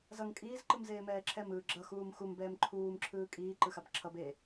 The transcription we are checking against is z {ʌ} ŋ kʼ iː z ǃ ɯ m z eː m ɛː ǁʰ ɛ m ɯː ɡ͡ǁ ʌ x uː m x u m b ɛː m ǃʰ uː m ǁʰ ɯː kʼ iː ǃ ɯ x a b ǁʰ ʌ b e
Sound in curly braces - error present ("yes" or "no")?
no